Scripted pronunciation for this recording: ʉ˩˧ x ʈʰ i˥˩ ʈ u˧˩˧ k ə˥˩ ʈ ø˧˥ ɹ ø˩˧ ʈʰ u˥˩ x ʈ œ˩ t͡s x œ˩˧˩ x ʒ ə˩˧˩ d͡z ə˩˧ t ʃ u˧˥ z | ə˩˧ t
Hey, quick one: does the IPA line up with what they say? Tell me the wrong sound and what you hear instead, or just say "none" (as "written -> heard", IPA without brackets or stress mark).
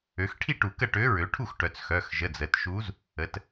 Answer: ʉ˩˧ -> ø˩˧